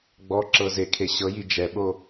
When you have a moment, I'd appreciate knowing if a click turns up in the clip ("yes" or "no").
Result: yes